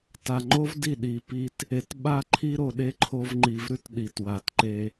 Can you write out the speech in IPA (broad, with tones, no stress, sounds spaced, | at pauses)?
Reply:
t a˨ ŋ͡ǃ o˦ v d i˦˨ ɗ i˨ p i˧ t | e˨ t ɓ a˦ ǃʰ i˦ ɾ o˧ ɗ e˦ ǃʰ o˧ v ŋ͡ǃ i˨ v ɾ ʉ˦ t ɗ i˨ t w a˨ t ǃ e˧